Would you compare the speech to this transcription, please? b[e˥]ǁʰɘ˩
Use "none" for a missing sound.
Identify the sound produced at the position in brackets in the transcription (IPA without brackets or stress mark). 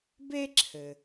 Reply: e˥